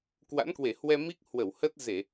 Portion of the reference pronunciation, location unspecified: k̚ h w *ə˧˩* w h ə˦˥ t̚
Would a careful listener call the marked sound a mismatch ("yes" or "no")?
no